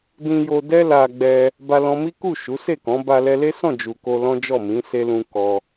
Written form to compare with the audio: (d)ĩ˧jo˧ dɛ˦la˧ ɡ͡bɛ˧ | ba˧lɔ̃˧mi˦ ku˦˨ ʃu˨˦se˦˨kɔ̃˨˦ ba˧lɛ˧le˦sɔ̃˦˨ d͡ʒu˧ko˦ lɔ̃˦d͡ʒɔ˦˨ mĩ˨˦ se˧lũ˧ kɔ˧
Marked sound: correct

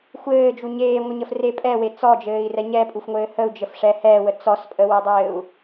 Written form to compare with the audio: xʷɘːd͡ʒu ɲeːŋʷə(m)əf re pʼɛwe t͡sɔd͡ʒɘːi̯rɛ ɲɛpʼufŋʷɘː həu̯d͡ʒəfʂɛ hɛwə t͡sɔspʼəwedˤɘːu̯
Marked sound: incorrect: ɲ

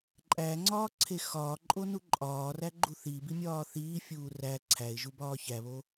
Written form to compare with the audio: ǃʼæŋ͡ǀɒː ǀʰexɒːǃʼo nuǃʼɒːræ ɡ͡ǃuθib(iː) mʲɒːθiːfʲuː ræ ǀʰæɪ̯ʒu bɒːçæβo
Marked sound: incorrect: i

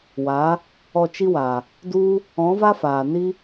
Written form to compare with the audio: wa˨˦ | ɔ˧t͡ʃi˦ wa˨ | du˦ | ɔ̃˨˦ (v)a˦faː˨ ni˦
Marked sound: correct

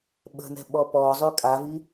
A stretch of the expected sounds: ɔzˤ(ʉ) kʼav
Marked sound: correct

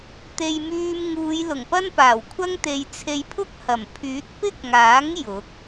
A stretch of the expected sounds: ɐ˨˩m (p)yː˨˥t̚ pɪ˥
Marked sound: incorrect: pʰ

